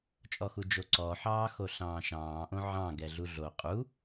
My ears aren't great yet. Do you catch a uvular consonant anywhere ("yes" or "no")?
yes